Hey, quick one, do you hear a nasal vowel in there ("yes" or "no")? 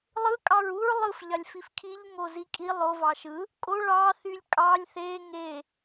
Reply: no